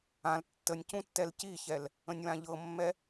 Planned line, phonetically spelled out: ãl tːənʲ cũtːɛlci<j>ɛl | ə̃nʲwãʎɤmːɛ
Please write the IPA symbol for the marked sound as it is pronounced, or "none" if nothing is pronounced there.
ç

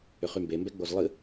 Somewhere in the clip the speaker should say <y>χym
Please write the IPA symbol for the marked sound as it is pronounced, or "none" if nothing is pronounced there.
ʏ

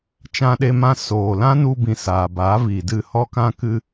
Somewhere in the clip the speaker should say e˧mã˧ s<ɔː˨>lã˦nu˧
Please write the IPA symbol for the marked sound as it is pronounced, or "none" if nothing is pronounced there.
oː˨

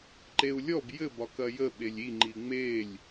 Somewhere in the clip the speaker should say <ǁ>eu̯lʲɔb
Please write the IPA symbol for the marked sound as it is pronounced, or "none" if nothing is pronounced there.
ǃ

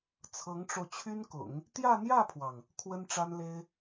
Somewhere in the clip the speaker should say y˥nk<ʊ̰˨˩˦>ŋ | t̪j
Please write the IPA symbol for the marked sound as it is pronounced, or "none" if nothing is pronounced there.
ʊ̰˨˩˦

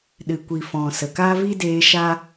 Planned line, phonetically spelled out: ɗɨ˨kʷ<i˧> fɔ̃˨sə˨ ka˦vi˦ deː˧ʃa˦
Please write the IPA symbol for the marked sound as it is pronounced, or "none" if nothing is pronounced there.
i˨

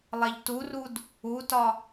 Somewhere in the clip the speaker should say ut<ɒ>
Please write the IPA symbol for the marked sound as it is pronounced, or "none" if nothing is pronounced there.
ɒ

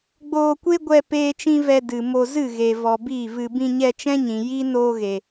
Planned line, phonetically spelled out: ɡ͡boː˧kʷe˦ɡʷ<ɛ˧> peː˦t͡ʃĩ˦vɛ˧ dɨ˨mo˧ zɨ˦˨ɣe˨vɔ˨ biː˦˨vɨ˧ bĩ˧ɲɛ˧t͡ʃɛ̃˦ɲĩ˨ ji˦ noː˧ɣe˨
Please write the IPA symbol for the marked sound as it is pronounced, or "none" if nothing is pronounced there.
ɛ˧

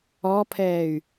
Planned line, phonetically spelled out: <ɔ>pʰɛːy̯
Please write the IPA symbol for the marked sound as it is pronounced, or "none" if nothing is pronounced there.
ɔ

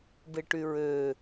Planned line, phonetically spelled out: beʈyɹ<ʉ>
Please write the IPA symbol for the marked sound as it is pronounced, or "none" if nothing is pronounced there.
ø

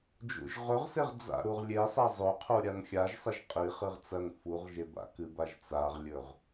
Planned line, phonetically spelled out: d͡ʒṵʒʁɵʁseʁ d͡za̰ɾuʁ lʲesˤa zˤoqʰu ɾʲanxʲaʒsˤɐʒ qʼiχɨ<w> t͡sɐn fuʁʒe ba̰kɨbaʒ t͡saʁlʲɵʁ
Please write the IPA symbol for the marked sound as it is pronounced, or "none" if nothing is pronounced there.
ʁ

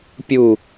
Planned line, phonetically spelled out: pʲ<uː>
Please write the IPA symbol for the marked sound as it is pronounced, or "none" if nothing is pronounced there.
u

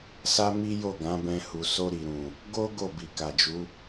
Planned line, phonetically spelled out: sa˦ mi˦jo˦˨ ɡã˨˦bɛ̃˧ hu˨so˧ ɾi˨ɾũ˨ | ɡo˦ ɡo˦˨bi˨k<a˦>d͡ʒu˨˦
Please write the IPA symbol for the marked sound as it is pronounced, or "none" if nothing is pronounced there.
a˨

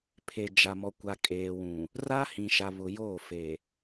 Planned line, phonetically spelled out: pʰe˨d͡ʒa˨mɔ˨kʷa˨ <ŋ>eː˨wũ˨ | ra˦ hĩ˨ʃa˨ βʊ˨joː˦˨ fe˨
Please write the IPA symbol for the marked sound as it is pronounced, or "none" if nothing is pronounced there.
kʼ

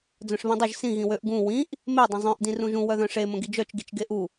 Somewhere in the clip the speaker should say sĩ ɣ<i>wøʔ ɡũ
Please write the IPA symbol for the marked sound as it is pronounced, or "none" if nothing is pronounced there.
ĩ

